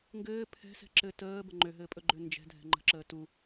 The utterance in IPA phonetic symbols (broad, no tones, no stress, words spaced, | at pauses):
ŋɡɘː pʰɛ̤ sɛ̤ǁɘ təː bəŋ͡ǃøɦɘːpʼɵ ɡ͡ǃønd͡ʒɛ̤dʱɛ̤ ŋ͡ǃə̤ǁəː tu